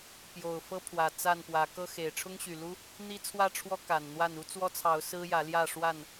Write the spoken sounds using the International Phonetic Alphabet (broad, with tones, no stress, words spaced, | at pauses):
pjo˨˩ʊ̯fɤ˦pʰwä˨˩ t͡sa˥˨npwä˨˦ kɤ˦xe˨˩ɪ̯ ʈ͡ʂʰʊ˦ŋɕy˨˩lu˦ | n̪i˦t͡sʰwä˥˨ʈ͡ʂʰwɔ˦ ka˨˩nn̪wa˥˨n u˦t͡swɔ˦t͡sʰɑ˨˦ʊ̯ sɹ̩˦jä˨˦ ljä˥˨ʂwa˥˨n